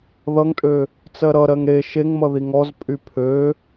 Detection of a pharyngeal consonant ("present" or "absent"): absent